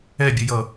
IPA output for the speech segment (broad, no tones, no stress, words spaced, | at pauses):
ɛbʲəjʌ